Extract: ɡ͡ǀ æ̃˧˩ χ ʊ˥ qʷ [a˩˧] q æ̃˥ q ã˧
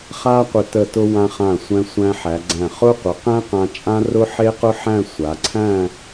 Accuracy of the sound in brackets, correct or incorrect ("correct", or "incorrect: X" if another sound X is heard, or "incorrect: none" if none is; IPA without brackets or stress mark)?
incorrect: ə˩˧